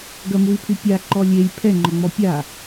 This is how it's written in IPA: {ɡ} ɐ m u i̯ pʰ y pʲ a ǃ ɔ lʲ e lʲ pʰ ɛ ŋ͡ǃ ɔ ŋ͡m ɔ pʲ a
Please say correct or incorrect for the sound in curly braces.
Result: correct